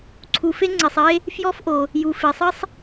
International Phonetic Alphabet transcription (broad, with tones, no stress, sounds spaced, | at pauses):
ǀʰ u˩ f e˥ ŋ͡ǀ e˩ sˤ e˥ | f j ɔ˥ f ʔ o˩ | j u˩ f e˩ sˤ i˥ sˤ